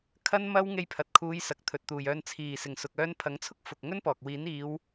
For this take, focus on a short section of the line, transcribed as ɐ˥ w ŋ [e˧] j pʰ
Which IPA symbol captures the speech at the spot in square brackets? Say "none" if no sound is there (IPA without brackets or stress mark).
e˧